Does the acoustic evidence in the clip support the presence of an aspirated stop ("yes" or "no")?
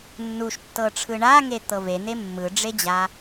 yes